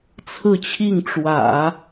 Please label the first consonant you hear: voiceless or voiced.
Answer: voiceless